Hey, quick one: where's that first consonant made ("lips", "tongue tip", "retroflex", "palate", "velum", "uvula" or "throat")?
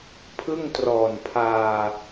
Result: lips